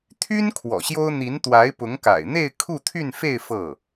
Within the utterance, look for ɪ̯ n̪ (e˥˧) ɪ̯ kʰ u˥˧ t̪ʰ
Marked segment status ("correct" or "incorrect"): correct